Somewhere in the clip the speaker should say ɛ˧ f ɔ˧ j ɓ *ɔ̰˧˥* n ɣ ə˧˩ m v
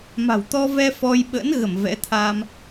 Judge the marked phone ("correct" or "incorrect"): incorrect